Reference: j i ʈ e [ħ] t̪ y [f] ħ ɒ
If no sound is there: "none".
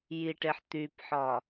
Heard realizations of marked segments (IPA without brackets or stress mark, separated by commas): ħ, p